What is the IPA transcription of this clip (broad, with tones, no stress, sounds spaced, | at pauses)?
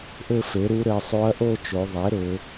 ʔ ɘ˥˧ f e˩˥ ɾ u˧˥ ɾ ɘ˩˧ sˤ o˧˥ ɐ̯ ʔ o˥˧ t͡ʃ o˩˧ ðˤ e˩˥ ɾ ɘ˩˧